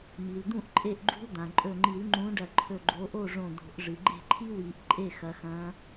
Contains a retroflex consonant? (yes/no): yes